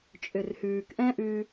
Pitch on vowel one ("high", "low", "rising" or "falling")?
low